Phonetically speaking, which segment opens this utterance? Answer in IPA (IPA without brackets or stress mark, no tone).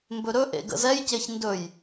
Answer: m